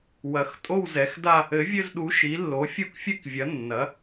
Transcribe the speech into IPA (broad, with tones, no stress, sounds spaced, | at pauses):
w ɐ˨˥ x tʼ o˥˧ w z ɛ˨˥ x d a˥˧ | ɘ˨˥ vʲ ɘ˥˧ z ɗ u˨˥ ʃ i˨˥ lː o˨˥ fʲ u˥˧ k fʲ ɨ˥˧ k vʲ ɐ˨˥ nː ɐ˨˥